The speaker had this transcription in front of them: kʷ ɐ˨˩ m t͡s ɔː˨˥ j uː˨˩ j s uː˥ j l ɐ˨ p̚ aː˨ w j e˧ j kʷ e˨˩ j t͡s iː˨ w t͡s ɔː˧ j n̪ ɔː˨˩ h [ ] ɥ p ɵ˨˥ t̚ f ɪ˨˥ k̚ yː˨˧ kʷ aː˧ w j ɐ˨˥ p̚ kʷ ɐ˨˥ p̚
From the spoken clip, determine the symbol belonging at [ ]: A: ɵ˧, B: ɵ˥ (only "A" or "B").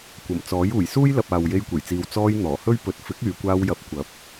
B